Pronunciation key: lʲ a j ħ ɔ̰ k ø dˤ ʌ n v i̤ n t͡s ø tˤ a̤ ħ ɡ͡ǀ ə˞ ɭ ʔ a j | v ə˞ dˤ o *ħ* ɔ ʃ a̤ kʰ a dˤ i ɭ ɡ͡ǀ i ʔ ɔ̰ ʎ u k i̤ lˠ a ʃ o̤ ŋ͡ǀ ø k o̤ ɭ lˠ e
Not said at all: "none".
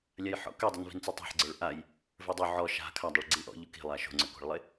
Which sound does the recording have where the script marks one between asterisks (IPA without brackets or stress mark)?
ʕ